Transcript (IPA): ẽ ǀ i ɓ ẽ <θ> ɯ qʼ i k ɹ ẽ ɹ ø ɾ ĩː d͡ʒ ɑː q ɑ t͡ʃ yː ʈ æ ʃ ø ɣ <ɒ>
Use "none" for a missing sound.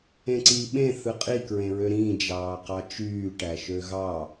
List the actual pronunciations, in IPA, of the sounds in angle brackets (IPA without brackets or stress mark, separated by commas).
θ, ɑ